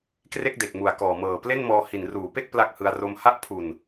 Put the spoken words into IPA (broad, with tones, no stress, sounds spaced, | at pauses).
k r e˥˩ k̚ d e˨˩ k̚ m u˨˩ a̯ k ɔː˨˩ m ɤː˨˩ p l e˥˩ n m ɔː˧ h i˨˩ n r uː˩˦ p e˥˩ k̚ p l a˥˩ k̚ h ɯ˧ a̯ r o˧ m h a˥˩ ʔ pʰ u˨˩ n